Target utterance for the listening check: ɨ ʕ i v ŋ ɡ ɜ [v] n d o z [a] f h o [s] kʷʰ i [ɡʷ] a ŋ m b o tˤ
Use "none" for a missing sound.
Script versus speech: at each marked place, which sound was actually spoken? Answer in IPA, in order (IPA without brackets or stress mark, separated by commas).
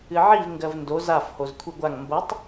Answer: v, a, z, ɡʷ